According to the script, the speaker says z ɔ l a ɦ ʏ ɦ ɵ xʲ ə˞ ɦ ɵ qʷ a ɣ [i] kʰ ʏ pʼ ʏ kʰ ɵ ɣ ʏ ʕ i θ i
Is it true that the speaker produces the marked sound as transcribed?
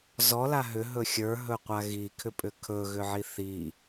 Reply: yes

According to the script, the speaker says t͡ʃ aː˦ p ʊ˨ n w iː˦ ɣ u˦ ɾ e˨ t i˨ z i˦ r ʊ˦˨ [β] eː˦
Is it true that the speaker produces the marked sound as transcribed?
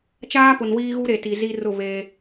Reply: yes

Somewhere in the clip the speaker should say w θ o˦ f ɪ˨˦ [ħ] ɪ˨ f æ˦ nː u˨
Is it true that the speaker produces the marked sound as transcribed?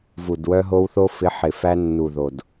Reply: yes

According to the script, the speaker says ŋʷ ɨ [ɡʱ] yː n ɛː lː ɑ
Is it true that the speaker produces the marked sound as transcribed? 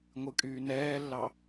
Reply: no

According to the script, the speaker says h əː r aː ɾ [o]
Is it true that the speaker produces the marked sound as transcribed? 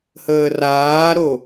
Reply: yes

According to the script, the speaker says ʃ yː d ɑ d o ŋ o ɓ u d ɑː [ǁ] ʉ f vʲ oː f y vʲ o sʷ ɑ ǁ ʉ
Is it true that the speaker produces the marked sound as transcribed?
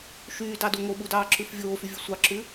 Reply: yes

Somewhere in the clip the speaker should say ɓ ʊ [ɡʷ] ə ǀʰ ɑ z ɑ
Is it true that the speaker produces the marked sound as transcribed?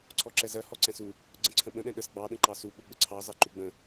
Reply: no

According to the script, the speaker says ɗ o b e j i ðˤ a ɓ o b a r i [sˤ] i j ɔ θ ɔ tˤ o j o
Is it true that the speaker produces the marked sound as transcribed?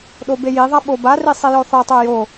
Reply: yes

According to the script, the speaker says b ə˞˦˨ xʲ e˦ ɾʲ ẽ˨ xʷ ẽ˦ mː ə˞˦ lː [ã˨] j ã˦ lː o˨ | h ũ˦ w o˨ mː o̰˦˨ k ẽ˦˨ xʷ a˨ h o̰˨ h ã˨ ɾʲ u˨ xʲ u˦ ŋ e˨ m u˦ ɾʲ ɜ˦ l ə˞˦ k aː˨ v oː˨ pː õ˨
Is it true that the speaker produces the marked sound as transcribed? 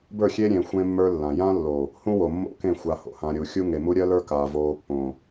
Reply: yes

